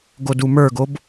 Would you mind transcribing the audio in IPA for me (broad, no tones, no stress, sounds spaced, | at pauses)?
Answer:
ɡ o d u m ə˞ ɡ o b